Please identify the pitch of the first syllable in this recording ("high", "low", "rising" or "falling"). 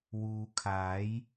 low